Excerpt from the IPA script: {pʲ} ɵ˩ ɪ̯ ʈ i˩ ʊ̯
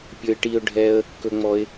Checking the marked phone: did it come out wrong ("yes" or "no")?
no